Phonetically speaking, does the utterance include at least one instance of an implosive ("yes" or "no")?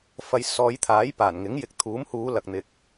no